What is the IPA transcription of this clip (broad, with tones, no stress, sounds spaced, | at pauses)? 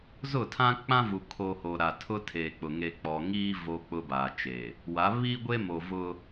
z ʊ˦˨ tʰ ã˦ k͡p ã˦ v u˨ kʰ o˨ h o˨ ɾ a˨ tʰ ʊ˦ tʰ eː˨ k͡p ʊ˨ ŋ e˨ k͡p ɔ˨ ŋ iː˦ v o˦ k͡p ʊ˦ b aː˨ t͡ʃ e˨ | w a˨˦ β iː˦ ɡʷ e˦ m o˨ v ʊ˦